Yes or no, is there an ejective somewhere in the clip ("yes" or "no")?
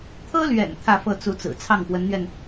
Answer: no